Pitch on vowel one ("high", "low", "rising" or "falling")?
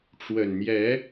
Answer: low